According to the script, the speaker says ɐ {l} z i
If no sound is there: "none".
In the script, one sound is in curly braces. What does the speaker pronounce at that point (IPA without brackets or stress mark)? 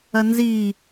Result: n